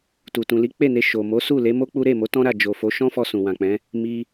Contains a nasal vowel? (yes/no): yes